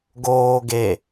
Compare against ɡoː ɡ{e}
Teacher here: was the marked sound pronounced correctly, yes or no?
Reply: yes